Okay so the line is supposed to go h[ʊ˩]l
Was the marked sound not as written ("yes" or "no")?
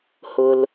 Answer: no